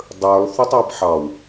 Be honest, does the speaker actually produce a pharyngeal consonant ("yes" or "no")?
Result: yes